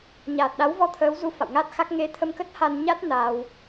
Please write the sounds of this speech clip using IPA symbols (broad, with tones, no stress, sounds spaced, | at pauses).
ɲ aː˨˩ t̚ ɗ a˨˦ w v ɔ˧ t̪ʰ əː˨˦ w z u˧ f a̰˧˨ w ŋ a˦˥ t̚ x a˦˥ k̚ ŋ e˨˦ t̪ʰ ə˧ m k ə˦˥ t̚ h a˧ n ɲ a˦˥ t̚ n a˧ w